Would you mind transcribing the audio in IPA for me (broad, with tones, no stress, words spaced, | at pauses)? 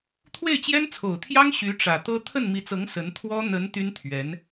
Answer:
t̪ʰwe˥˩ɪ̯t͡ɕjɛ˥nt͡sʰo˨˩ʊ̯t̪ʰjɑ˥ŋ ɕy˧˥ʈ͡ʂä˨˩t̪ɤ˥ t̪ʰə˥˩nmi˧˥t͡sɤ˧˥ŋ sə˧˥n t̪ʰwɔ˥ n̪ə˧˥n t̪y˥nt̪ʰɥɛ˧˥n